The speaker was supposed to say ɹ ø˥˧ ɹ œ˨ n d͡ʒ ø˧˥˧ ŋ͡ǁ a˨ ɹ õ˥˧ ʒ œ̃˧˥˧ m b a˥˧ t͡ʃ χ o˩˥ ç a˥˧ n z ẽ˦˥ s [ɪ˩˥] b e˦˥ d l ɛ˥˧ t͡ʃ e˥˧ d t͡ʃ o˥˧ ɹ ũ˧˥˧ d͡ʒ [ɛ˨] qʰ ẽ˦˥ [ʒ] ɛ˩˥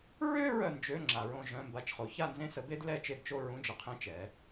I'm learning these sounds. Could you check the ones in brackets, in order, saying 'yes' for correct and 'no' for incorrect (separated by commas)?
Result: no, no, no